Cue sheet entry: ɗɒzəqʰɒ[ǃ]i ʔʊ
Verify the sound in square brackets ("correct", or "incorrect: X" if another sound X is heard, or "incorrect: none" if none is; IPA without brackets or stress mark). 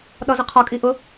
incorrect: kʼ